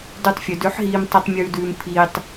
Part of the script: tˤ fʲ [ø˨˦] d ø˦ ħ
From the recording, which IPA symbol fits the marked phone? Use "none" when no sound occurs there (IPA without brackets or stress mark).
ø˨˦